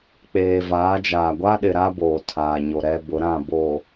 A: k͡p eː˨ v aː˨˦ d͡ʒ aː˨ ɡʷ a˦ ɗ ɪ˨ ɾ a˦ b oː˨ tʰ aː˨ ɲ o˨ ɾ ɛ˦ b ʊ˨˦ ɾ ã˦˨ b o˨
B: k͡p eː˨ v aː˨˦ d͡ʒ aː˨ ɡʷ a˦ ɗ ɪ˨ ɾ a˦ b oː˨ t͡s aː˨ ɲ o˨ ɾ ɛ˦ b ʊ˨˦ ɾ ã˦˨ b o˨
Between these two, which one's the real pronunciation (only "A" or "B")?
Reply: A